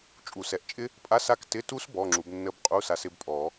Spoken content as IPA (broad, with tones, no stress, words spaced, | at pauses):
t͡ʃʼu˨˩˦sɛ˨˩˦ʔt͡ʃʼɪ˦˥ | pʼa˧˥˧sa˦˨k tɪ˧˥˧tu˦˥s bɔ˧˥˧ŋ͡ǁu˨˦bnːə˦˥b qʼu˧˥˧sa˨˦sɪ˨˦bpʼɔ˨˩˦